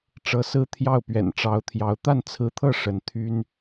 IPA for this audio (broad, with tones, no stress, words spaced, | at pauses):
ʈ͡ʂɤ˧˥sɹ̩˥t̪ʰjɑ˥˩ʊ̯ pɥɛ̰˨˩nʈ͡ʂɑ˧˥ʊ̯t̪ʰjɑ˧˥ʊ̯ t̪a˥˩nt͡sʰɹ̩˧˥t̪ʰɤ˥˩ ʂə˧˥n t̪ʰy˥n